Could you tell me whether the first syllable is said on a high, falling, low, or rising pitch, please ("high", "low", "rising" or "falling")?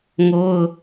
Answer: high